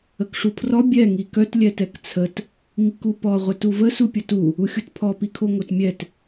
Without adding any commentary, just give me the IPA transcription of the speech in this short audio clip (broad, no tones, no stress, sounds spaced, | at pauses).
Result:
ə k ʂ u pʰ r ɔ bʲ ɛ ŋ i k œ t lʲ ɛ t ɛ k t͡sʰ ə t | ŋ i k u p ɔ ʁʷ ɛ t u v ə s u pʲ ə t u | u xʲ u t pʰ ɔ p i kʰ o ŋ o t mʲ ɛ t